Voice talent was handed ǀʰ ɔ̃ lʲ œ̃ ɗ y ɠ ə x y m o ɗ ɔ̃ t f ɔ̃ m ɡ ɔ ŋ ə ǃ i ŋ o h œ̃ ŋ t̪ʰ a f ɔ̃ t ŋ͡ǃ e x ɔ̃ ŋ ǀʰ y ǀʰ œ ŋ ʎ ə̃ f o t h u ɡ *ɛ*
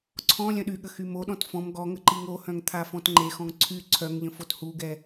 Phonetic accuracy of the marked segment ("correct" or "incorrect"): correct